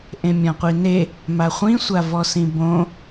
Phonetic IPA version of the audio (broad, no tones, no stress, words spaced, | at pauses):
ʔẽmʲɔ̃qʷine | maχʷĩsʷavɔ sĩbõ